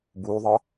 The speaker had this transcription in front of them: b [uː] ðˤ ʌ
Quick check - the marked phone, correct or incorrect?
correct